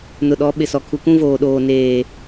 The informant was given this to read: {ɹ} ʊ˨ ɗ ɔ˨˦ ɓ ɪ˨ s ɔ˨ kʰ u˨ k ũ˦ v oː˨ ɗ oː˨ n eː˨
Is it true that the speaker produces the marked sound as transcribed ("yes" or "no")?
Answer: no